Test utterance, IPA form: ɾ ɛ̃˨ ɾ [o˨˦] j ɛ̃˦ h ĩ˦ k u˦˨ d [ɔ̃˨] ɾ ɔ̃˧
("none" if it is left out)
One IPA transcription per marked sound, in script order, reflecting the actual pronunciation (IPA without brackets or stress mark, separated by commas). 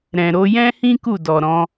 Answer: o˧, ɔ˨